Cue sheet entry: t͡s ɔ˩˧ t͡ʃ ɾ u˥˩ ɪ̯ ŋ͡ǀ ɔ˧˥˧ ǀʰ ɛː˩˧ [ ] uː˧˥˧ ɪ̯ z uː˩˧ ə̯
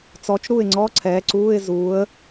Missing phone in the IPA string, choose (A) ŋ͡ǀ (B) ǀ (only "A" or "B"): B